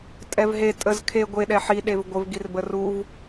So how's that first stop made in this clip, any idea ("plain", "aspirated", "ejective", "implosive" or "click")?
ejective